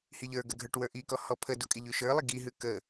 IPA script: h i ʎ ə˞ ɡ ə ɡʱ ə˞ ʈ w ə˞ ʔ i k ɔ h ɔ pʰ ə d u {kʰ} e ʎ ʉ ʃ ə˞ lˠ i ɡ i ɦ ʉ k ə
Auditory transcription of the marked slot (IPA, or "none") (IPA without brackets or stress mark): kʼ